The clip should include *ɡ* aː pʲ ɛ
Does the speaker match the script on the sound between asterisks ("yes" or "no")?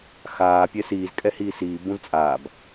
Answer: no